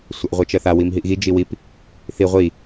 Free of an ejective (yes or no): yes